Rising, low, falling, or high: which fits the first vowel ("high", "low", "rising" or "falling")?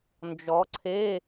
rising